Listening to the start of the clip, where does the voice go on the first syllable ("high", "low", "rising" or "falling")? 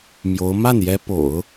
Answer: rising